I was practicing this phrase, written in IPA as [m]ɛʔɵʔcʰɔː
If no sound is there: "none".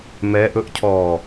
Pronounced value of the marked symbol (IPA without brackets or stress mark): m